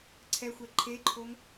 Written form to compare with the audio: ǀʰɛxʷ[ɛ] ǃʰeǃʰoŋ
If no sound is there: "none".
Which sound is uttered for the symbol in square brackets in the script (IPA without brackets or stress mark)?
ɛ